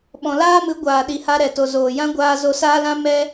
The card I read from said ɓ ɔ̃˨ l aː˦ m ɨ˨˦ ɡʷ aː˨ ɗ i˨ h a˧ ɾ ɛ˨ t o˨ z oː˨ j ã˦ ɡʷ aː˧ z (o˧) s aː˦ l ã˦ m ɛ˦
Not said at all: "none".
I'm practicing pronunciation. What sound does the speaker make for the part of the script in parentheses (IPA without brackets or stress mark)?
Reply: o˧